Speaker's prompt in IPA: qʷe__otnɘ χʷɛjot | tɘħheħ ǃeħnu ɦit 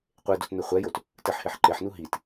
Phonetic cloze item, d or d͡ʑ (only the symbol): d